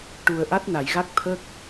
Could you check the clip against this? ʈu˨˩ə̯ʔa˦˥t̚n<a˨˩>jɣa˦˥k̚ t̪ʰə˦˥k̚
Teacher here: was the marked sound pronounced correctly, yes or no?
no